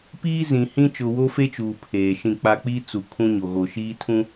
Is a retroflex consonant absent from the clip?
yes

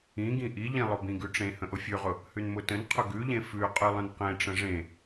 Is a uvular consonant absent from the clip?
no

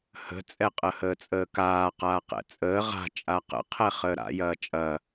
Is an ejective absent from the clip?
no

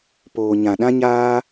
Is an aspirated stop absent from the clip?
yes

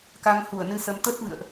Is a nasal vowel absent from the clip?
yes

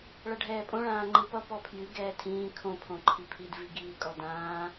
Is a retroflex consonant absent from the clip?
no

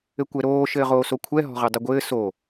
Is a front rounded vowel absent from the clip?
yes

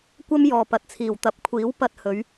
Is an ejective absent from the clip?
yes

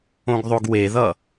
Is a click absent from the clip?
yes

